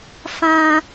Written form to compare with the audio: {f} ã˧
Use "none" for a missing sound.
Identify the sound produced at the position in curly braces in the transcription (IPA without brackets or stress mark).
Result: f